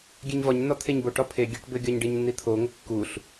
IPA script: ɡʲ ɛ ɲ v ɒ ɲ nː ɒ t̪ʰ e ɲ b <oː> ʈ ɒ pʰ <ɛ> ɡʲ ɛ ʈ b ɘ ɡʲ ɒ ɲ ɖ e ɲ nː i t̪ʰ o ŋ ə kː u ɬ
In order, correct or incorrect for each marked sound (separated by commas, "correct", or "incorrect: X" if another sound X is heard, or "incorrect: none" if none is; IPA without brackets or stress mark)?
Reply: incorrect: o, incorrect: e